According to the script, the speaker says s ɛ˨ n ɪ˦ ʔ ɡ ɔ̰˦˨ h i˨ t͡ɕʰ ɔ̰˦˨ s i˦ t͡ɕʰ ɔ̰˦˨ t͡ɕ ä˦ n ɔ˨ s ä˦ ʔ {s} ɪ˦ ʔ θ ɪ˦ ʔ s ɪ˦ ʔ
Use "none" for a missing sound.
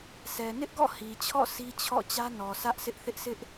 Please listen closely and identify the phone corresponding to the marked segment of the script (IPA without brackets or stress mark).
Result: s